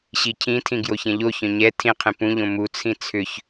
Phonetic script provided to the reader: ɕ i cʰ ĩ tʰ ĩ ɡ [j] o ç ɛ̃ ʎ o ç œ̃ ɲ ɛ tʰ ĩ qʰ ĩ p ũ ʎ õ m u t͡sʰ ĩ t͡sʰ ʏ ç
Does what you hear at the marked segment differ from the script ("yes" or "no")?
no